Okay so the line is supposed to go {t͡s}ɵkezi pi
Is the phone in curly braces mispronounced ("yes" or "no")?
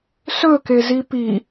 yes